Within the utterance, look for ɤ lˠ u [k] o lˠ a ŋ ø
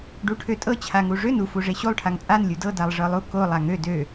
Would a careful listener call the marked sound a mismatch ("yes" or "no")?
no